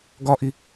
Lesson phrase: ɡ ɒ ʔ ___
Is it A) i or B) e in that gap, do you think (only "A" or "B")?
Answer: A